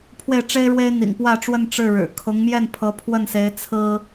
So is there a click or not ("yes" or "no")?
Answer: no